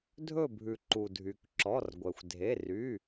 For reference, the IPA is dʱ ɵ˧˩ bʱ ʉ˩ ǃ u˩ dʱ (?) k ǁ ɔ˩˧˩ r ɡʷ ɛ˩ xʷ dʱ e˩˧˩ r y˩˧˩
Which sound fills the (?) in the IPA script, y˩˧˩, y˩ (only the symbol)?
y˩